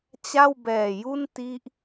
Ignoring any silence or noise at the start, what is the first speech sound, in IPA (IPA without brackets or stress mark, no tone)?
t͡ɕ